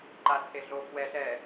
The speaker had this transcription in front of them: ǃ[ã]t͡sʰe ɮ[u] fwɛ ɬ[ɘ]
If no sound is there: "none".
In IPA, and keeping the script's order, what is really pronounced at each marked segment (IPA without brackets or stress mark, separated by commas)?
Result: a, o, ɛ